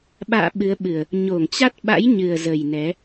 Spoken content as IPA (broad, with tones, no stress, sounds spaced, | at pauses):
ɓ a̰ː˧˨ ɓ ɨ˨˦ ə̯ ɓ ɨ˨˩ ə̯ | ɲ o˧˩ ŋ t͡ɕ a˦˥ t̚ ɓ a̰˧˥ j ɲ ɨ˨˩ ə̯ z ə˨˩ j n ɛ˨˦